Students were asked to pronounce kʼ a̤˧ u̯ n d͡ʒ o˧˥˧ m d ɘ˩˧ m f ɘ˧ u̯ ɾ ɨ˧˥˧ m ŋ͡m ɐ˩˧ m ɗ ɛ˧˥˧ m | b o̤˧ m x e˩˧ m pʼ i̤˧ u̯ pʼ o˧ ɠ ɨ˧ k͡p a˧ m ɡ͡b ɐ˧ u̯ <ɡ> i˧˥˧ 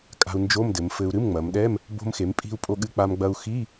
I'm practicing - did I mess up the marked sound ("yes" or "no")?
yes